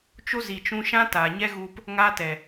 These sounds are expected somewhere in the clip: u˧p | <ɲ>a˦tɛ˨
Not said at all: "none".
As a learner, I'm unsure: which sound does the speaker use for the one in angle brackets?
ŋ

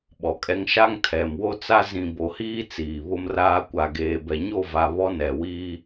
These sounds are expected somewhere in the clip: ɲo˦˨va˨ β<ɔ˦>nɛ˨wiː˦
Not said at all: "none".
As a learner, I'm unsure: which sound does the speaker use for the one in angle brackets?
ɔ˦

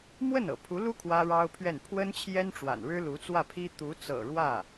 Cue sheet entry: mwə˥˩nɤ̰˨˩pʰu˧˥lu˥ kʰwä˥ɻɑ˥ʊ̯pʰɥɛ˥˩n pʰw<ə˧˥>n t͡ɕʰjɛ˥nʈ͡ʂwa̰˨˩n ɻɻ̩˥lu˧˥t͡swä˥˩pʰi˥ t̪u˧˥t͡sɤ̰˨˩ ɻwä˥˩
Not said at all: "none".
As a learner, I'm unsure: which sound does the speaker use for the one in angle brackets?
ə˥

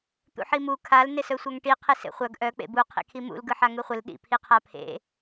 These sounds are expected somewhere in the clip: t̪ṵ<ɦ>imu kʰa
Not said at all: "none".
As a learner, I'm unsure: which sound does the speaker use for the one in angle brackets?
ħ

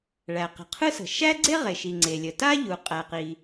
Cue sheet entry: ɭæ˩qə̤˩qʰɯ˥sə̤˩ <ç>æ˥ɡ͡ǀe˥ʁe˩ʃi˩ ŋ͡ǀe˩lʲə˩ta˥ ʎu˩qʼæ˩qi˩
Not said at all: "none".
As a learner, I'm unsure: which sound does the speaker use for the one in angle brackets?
ʃ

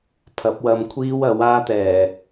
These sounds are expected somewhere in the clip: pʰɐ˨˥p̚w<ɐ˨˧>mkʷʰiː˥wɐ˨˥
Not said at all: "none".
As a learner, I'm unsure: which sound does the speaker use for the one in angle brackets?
ɐ˧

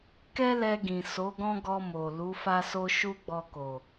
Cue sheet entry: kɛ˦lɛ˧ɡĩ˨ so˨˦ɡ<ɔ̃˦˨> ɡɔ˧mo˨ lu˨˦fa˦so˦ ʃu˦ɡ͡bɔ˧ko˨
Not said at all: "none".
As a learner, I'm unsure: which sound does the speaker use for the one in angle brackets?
ɔ̃˦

